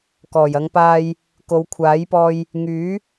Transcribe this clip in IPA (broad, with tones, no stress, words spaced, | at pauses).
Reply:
kɔː˨˩jɐ˨˧ŋpaː˧j | ko˨˧wkʷʰaː˨˥jpɔː˧j | ŋyː˨˥